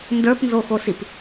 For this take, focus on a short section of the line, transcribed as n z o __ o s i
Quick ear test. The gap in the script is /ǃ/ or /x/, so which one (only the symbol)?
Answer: x